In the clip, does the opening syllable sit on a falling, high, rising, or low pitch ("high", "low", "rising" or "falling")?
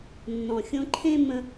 low